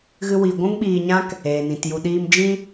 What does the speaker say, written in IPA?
ɣ ɨ˦ w i˧ ɡʷ ũ˦ ŋ ɓ iː˧ ɲ ã˦ k | eː˨ n ĩ˨ t j u˧ ɗ iː˧ m d͡ʒ ĩ˦

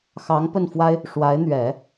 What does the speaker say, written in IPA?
x ɑ˧˥ ŋ p ə˥˩ n f w a˥ ɪ̯ | ʂ w a˧˥ ɪ̯ n̪ ɥ ɛ˨˩˦

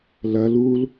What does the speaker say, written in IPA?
l ɐ l u l

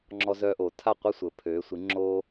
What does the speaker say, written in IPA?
ŋ͡ǁ ɔ˧ z œː˧ ʔ oː˩ tʰ a˥˩ qʷ ɐ˥ sʷ ə˩ pʰ øː˩˥ sʷ i˩˥ ŋ͡ǁ oː˥

